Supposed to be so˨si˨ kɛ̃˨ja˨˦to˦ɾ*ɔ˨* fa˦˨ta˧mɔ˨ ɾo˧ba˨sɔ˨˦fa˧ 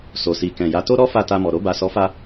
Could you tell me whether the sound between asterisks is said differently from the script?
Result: yes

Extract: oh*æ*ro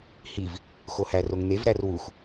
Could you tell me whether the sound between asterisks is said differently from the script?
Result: no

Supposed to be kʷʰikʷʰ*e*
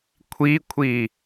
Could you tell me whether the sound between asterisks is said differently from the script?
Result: yes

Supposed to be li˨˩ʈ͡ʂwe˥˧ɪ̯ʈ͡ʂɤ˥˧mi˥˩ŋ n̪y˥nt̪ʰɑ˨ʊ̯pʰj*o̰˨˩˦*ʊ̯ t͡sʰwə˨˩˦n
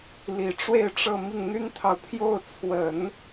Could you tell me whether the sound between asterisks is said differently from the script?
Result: yes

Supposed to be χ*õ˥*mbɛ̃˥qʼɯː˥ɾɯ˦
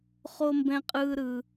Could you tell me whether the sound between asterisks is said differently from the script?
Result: yes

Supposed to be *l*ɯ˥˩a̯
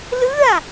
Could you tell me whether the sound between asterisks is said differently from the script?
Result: no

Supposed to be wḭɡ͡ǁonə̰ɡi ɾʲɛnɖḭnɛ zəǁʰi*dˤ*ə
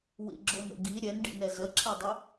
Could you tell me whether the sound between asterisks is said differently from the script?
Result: no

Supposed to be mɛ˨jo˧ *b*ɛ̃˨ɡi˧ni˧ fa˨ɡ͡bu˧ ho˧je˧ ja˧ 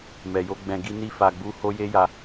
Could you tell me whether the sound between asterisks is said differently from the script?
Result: yes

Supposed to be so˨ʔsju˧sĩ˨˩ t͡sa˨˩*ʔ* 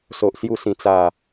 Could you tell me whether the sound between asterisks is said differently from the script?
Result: yes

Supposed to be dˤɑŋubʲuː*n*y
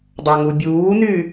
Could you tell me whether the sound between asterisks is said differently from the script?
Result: no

